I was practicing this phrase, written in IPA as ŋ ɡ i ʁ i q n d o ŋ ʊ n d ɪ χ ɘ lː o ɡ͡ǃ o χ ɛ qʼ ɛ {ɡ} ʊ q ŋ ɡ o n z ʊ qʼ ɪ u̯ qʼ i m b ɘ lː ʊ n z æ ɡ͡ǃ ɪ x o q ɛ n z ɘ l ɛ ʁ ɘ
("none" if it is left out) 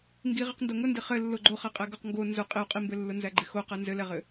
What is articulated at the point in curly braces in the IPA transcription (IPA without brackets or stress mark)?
ɡ